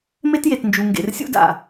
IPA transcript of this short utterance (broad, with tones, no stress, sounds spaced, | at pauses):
m e˦ t j e˨ t n d͡ʒ u˨ ŋ ɡ ḛ˨ r sʲ ṵ˦ d a̰˨